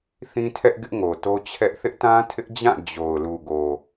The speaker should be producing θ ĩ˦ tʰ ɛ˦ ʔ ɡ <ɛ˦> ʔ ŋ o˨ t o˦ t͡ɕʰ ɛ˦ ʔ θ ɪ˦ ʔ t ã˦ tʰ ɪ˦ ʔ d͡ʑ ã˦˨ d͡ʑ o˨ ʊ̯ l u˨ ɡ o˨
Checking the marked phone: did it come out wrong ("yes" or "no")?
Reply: yes